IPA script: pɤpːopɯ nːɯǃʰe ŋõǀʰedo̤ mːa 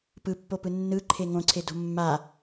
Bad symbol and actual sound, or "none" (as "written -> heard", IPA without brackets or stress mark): ɤ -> ɯ